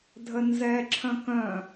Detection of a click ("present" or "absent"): present